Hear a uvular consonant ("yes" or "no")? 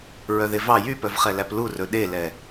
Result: yes